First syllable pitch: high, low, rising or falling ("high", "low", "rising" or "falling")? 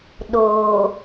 low